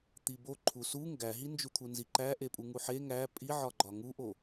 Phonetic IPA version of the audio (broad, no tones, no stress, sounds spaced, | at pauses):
t̪ i b o ǃʰ u s u ŋ ɡ æ ɦ i n d͡ʒ u t̪ʰ u n z i ǃ æ ʔ e pʼ u ŋ u ħ e ŋ æ pʼ i ʕ ɒ ɡ͡ǃ ɒ ŋ u ʔ o